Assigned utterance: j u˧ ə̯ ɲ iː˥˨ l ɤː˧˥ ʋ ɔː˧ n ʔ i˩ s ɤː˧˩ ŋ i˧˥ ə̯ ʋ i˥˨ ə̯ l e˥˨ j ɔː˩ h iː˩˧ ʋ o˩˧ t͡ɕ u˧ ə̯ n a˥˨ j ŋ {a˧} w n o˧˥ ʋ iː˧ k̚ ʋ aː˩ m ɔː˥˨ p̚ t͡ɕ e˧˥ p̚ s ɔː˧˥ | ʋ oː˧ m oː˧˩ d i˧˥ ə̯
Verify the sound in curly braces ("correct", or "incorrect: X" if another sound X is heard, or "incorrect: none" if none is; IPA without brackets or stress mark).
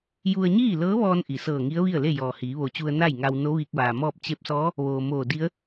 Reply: correct